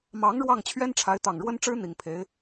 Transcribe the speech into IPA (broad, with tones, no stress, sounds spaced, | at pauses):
m ɑ˧˥ ŋ ɻ w ɑ˥˩ ŋ t͡ɕʰ ɥ ɛ˥ n ʈ͡ʂʰ a˧˥ ɪ̯ t̪ ɑ˨˩ ŋ ɻ w ə˥ n ʈ͡ʂ ɻ̩˥ n̪ i˨˩ ŋ pʰ e˧˥ ɪ̯